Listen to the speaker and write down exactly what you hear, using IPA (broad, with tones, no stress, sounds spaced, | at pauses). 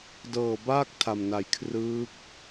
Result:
d ɤː˨˩ b aː˥˩ k̚ tʰ a˨˩ m n a˨˩ j kʰ r ɯː˦˥ k̚